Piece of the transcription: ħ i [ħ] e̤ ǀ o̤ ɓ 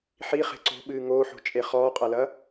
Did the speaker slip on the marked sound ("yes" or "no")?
yes